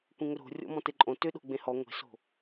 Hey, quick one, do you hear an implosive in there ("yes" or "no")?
yes